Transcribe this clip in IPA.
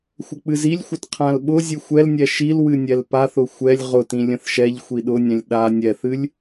xʷ ə k͡p ɨ z i lʲ xʷ ə t qʰ ã l ɓ ʊ zʲ ɨ xʷ ɛ l nʲ ɛ ʃ i l w ɨ nʲ ɛ l p a θ ʊ xʷ ɛ lʲ ʁ ʊ t ĩ lʲ ə̃ θ ʃ ɛ ʎ xʷ i ɗ ʊ nʲ ɛ̃ lʲ ɗ a nʲ ɛ θ ɨ lʲ

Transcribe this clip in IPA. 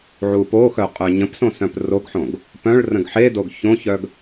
ʕ u p o x œ qʼ œ ɲ ə̃ p s õ s œ̃ p r o ɡ ħ õ ɡ | p œ̃ ɭ r ə̃ ɡ ħ e d o ɡ ç õ ç œ ɡ

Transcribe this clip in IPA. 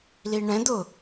l i ɳ ɛ̃ d̪ ʊ

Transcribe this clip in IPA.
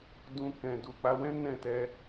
d ũ˧ k ɛ̃˨ d u˨ k͡p a˧ w ɛ̃˦ n ɛ̃˦˨ t ɛ˧

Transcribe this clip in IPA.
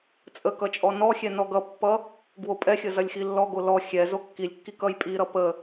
t͡sʼ ə k ʌ t͡ʃʼ ɔ n ɔ xʲ ɛ n ɔ ɡ ʌ pː ʌ | ɡ w o pʼ ɛ xʲ ə z ɐ lʲ x i lː ɔ ɡ o l ɔ xʲ ɛ z o kː i lʲ kː i k ʌ j pʼ i ɾ ʌ p ə

